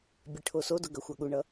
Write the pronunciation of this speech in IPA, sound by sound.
bʲ e ʈʰ o s o d ʊ ɡ ɐ xʷ a ɠ u ɳ ʌ

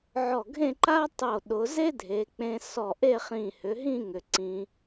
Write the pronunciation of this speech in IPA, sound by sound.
ʕ ɔ˧˩ ɡʱ ẽ˥˧ ǃ a˥ tˤ o˧˩ ɗ ʊ˩˧ z e˥ dʱ e˩˧ k͡p ẽ˧ s ɔ˧˩ ʔ e˥˧ χ ĩ˧˩ h ʏ˩˧ ɦ ĩ˥˧ ŋ ʏ˩˧ ǀ ĩ˧

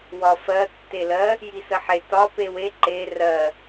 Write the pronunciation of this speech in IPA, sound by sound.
w ɒ f ɜ tː e l ɜ | j i s ə ħ e t ɒ p e w e ǃ e r ɜ

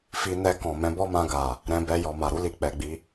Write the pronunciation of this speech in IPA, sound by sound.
f i˧ n ɛ˧ k ɔ̃˨ m ɛ̃˨˦ b ɔ˦ m ã˧ ɡ a˨ | ɾ ɛ̃˧ b ɛ˧ j ɔ˨ m a˨ ɾ u˨˦ l i˧ k͡p ɛ˨ ɡ͡b i˨˦

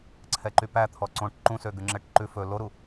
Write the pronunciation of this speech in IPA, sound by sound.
ǀʰ ɛ ǃ y p æ t̪ʰ ɔ ǀ õ ʈ ǃ ũ s ø ɡ ʉ ŋ͡ǁ ɛ ʈ ǃ ʉ f ɵ l o ɾ u

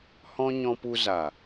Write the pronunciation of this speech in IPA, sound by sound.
h ɔ̃˦ ɲ ɔ̃˧ p u˧ z a˨

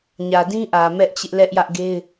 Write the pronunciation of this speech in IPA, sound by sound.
ɲ ä˨ d ĩ˦ ʔ ä˨ m ɛ˦ ʔ t͡ɕ ɪ˦ ʔ l ɛ˦ ʔ j ä˦ ʔ ɡ e˦ ɪ̯

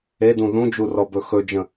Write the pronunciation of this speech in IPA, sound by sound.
e d ũ ð ũ d͡ʒ u r ɔ b ɵ x ɵ d͡ʒ ə̃

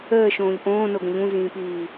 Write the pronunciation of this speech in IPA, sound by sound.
əː ʃ õː ʎ ʔ õː n o ɡ ə̃ ʎ ũ z ĩː p iː

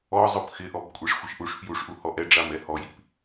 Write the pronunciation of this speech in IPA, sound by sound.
ɔ zˤ ʊ p x ɪ ʔ ɔ b kʷʼ e ʂ xʷ ɪ ʃ ʔ u ʂ f j u ʂ ʔ u h ɔ ʔ ɛ ɖ͡ʐ a m ɛ h ɔ j i p

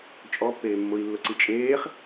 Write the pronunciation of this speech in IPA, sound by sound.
t͡ʃʼ ɔ pː eː mː ʊ i̯ lː ʊ ǀ i t͡ʃʼ eː χ

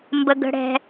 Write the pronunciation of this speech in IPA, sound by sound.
m b ə˩ ɡ ə̤˩ ɽ ɛ̤˩

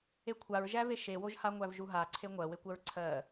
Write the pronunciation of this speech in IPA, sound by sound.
e kʷʰ a ɹ ʒ æ v e ʃ e w o ʒ h a ŋʷ æ v ʒ u ɦ a ǀʰ e ŋʷ ɜ w e kʷ ɜ ɹ ǀʰ ɜ

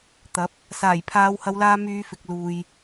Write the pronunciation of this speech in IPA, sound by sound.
t̪ ɐ˨˥ p̚ | s aː˨˩ j pʰ aː˨˧ w h ɐ˨˧ w l aː˧ m yː˨˧ f ɪ˨ k̚ l uː˨ j

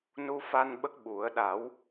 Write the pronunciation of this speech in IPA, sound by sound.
n u˧ f a˧ n ɓ ə˦˥ k̚ ɓ u˨˩˦ ə̯ ɗ a˨˩˦ w

